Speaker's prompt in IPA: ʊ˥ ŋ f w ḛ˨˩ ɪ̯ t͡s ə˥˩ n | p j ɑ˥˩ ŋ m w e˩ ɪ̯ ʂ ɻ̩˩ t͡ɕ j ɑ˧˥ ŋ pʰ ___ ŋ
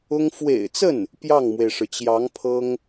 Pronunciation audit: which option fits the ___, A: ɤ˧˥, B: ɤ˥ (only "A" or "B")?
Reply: B